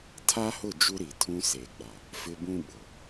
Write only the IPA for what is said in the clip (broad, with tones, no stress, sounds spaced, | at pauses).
tʰ a˦ h ʊ˦˨ d͡ʒ u˦ ɾ i˨ tʰ ũ˦ s eː˨ ɡ͡b a˨ | f ɪ˦ b ũ˦ ɓ ʊ˨